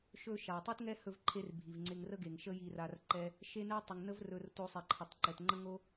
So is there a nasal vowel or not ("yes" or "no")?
no